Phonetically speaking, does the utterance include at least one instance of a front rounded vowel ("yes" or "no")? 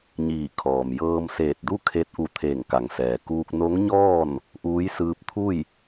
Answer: no